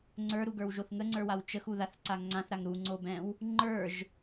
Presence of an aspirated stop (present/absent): absent